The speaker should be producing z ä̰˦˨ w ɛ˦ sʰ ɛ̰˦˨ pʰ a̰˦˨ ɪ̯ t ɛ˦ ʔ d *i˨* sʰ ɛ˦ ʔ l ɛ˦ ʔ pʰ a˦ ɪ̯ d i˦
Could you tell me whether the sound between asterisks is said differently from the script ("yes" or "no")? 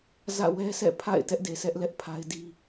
yes